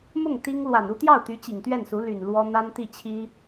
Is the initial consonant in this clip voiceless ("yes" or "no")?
no